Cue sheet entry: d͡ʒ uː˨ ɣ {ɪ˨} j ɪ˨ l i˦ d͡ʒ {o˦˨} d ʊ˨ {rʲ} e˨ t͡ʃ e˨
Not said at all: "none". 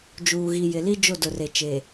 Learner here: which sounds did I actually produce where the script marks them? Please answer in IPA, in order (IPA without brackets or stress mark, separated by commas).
i˨, o˦˨, r